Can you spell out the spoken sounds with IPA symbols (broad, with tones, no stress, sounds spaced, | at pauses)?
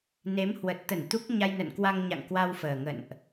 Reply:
n e˨˦ m h w ə˨˩ t̚ t̪ ə˧˩ n t̪ u˦˥ k̚ ɲ a˧ j n ə̰˧˨ n k w a˧ ŋ ɲ a̰˧˨ ŋ k w a˧ w f əː˨˩ ŋ ə̰˧˨ n ʔ